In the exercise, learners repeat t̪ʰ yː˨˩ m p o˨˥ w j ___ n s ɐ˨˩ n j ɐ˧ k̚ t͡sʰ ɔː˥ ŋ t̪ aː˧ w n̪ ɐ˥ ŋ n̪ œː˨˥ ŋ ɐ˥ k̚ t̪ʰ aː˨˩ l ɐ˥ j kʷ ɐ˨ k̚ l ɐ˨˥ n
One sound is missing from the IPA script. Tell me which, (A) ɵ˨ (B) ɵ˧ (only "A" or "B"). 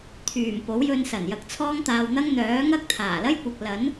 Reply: B